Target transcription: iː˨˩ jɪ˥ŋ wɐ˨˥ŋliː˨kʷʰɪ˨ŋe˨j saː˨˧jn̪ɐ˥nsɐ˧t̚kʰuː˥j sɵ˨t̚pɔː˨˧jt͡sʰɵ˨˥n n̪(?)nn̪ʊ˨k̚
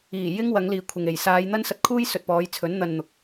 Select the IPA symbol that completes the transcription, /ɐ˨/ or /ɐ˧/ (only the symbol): ɐ˧